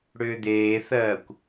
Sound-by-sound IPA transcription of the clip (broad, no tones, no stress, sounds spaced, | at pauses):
ɽ ʏː d̪ eː θ ɜː kʷ